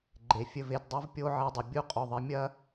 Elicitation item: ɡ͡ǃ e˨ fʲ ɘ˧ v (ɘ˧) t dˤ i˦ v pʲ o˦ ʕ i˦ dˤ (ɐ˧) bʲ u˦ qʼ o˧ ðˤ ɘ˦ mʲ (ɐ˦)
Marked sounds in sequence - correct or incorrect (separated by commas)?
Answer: incorrect, correct, correct